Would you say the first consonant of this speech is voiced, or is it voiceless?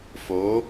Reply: voiceless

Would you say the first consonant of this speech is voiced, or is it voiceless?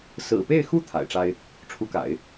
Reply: voiceless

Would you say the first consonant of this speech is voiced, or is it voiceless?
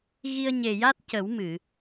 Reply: voiced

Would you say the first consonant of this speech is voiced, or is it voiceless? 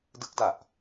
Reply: voiced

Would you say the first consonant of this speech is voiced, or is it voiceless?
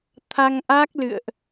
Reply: voiceless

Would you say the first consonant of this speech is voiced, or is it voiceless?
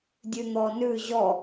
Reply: voiced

